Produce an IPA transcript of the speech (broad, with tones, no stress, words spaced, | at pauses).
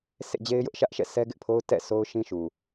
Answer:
sḛ˦˨d͡ʑe˦ɪ̯jʊ˦ʔ ʃä˦ʔʃɛ̰˦˨ sʰɛ˦ɡɪ˦ʔpʰo˦ʊ̯ tɛ̰˦˨sʰo˦ʊ̯ ʃĩ˦ʃu˨